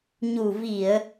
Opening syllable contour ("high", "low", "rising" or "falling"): low